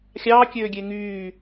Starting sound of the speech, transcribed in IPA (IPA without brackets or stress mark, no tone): xʲ